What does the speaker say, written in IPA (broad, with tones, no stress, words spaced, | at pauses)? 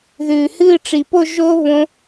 ðʉː˨˩hɨː˥˧ʈ͡ʂi˨˩ po˥˧ ʒo˦˥ βõ˦˥